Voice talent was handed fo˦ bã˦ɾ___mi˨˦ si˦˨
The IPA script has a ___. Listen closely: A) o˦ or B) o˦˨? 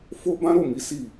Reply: B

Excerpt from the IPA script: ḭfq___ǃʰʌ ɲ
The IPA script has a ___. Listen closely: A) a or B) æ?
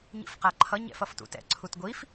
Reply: A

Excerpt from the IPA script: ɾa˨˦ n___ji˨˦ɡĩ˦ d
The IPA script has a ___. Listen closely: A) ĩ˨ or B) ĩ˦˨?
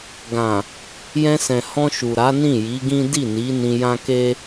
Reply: B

